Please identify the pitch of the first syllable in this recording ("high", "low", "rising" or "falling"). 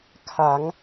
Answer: rising